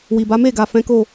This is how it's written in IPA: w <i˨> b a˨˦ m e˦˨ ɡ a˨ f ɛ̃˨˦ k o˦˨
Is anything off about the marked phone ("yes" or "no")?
no